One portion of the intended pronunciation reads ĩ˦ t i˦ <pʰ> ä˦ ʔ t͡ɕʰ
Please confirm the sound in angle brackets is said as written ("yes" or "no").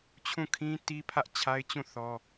yes